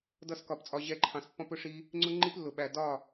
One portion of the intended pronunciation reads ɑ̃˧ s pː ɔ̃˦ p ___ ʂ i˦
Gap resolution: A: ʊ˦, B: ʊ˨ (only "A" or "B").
A